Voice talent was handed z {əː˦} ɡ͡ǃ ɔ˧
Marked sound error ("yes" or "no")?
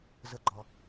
yes